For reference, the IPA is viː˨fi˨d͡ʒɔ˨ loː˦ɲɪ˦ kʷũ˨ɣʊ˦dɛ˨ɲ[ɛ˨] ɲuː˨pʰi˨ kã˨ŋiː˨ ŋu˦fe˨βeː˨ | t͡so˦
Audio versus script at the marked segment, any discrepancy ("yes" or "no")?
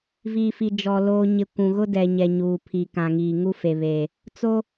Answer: no